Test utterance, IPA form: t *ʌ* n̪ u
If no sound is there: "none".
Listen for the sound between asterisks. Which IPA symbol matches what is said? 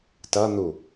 ʌ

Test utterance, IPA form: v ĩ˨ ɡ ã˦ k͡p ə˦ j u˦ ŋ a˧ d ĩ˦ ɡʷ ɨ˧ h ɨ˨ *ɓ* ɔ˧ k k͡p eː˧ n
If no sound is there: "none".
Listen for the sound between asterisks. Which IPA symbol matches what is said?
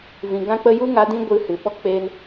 ɓ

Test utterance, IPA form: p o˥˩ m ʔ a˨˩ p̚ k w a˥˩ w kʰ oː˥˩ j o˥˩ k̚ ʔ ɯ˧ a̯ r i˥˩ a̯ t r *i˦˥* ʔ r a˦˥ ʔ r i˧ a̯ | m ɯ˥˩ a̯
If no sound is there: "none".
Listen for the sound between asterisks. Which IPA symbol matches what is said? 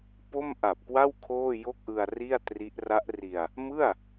i˦˥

